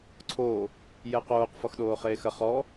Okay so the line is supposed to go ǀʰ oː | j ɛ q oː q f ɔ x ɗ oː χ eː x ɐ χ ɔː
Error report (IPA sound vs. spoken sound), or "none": none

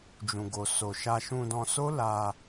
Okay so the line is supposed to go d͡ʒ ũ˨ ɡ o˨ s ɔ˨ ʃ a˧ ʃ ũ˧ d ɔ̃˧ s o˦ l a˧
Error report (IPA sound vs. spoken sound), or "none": ɔ˨ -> o˨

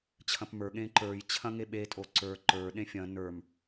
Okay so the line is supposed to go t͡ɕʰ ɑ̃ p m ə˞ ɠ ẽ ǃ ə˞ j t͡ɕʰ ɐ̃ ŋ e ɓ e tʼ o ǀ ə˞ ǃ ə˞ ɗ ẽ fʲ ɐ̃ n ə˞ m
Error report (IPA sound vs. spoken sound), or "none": ɑ̃ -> ɐ̃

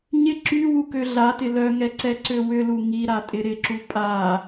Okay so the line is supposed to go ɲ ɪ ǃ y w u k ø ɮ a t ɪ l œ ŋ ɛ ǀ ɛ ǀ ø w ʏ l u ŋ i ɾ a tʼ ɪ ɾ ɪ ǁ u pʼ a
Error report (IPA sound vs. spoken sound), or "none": ǃ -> ǁ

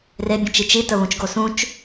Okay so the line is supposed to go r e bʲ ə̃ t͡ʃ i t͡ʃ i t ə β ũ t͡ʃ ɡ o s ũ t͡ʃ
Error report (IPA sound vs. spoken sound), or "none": none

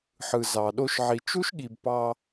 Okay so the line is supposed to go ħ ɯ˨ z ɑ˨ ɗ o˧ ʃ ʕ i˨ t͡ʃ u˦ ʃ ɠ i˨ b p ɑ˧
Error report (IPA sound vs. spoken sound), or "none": none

